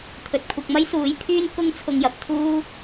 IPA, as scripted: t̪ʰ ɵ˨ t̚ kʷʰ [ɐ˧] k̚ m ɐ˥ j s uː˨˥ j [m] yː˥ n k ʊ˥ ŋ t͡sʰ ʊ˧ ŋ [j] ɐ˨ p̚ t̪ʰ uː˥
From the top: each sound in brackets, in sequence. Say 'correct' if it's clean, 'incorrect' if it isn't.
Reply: correct, incorrect: pʰ, correct

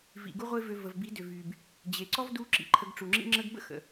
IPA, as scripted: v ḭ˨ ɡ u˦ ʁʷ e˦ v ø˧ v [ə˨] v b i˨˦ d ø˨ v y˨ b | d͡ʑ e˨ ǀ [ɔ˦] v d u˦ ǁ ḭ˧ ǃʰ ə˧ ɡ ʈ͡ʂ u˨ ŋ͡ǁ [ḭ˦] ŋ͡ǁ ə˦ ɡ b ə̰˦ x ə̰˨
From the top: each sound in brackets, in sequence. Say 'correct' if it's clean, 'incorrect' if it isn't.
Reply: correct, correct, correct

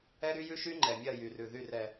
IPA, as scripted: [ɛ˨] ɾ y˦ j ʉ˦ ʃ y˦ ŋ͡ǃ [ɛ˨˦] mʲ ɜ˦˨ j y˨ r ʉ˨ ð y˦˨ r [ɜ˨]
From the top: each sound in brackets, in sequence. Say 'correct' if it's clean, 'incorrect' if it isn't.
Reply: incorrect: ɛ˦, incorrect: ɛ˨, incorrect: ɛ˨

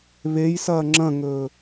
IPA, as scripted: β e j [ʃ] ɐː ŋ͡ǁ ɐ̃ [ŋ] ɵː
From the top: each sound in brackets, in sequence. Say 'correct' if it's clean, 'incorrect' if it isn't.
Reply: incorrect: s, correct

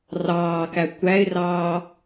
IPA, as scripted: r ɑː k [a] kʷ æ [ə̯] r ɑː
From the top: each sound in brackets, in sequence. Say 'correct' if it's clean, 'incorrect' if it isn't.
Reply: incorrect: æ, incorrect: ɪ̯

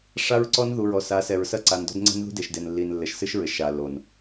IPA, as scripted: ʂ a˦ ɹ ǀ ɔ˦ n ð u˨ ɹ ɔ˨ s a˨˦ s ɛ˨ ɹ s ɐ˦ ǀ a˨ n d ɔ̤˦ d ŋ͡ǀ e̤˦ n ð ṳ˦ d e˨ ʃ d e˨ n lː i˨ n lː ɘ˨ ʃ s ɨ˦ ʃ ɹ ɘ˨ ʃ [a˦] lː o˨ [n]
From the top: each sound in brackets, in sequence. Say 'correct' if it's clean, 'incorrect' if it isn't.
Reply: incorrect: a˨, correct

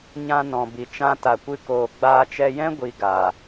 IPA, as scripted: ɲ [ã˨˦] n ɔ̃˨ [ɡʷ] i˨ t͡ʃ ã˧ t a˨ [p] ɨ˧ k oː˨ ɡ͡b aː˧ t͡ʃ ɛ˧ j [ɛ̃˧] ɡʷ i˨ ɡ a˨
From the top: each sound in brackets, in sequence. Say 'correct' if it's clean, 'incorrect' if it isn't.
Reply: incorrect: ã˧, incorrect: b, incorrect: kʷ, incorrect: ɛ̃˦

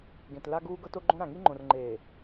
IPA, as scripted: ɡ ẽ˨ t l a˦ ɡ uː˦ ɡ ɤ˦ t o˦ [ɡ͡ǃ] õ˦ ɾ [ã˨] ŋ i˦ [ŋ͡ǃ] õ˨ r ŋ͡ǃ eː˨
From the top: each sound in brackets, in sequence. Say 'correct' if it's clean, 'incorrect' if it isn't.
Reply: correct, correct, correct

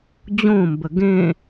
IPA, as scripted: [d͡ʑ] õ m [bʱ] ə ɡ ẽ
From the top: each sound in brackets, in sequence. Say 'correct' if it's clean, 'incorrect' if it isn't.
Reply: correct, incorrect: b

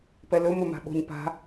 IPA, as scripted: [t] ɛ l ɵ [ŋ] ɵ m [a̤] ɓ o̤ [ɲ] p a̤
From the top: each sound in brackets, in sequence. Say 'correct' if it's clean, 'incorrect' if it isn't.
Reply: incorrect: p, incorrect: m, correct, correct

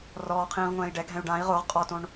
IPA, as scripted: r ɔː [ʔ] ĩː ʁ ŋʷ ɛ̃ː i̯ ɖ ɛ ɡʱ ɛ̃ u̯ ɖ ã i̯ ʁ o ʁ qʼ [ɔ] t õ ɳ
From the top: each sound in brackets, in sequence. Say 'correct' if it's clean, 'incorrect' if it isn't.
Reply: incorrect: qʰ, correct

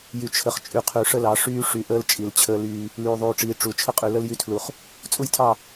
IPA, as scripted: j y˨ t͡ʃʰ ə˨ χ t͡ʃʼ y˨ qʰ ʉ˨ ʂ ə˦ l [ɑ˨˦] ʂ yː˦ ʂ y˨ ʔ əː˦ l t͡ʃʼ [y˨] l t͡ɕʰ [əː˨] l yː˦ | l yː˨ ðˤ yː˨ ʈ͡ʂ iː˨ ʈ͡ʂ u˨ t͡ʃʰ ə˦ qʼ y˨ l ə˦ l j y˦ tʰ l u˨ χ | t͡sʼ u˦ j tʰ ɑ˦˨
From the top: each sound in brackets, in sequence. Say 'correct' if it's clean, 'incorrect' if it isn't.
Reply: correct, incorrect: i˨, incorrect: əː˦

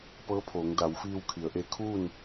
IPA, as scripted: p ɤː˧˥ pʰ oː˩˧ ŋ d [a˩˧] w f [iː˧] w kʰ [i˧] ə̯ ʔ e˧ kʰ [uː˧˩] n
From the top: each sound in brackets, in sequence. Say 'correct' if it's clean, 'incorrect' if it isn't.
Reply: correct, correct, incorrect: i˩˧, incorrect: uː˥˨

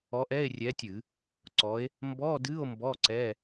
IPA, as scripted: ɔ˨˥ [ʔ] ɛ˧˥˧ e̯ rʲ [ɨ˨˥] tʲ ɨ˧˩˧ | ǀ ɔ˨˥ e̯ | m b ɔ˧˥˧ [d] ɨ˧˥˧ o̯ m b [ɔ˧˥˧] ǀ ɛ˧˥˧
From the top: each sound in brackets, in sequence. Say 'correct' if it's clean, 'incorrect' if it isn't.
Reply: correct, incorrect: ɛ˨˥, correct, correct

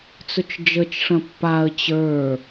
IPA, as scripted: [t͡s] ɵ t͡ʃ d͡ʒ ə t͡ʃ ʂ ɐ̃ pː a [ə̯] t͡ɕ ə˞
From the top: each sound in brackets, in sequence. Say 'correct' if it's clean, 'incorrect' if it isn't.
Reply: correct, correct

